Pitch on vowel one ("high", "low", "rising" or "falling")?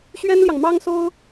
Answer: high